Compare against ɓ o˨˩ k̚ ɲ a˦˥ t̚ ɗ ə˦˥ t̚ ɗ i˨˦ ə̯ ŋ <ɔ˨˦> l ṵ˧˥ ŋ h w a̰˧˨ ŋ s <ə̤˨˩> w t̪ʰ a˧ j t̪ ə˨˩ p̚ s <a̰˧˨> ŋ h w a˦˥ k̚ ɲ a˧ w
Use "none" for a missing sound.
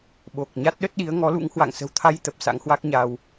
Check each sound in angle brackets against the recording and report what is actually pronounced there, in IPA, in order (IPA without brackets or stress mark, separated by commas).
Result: ɔ˨˦, ə̤˨˩, a̰˧˥